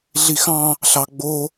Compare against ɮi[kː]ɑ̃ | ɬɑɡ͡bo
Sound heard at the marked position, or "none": x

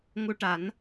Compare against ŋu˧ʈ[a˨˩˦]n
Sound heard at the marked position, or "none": a˨˩˦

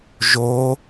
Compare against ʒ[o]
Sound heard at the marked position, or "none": o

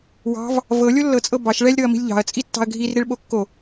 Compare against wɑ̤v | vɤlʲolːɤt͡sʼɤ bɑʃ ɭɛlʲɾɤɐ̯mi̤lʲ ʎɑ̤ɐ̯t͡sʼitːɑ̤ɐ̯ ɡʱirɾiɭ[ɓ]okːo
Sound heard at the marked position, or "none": ɓ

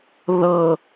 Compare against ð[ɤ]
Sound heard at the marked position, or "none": ɤ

